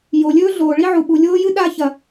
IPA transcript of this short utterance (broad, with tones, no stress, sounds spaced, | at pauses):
j o˩ lʲ ɵː˥ ɮ oː˩ ɭ i˥ ʕ u˩ ɓ u˩ lʲ oː˥ j ɨ˥ ɗ a˥ ç ɐ˩